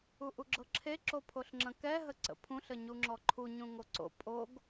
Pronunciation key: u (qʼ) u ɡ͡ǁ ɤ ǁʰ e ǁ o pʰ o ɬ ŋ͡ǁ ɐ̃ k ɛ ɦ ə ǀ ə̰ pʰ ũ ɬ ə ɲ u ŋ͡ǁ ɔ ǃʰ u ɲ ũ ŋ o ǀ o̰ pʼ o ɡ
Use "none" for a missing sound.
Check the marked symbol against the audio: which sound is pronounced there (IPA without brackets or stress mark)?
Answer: ʔ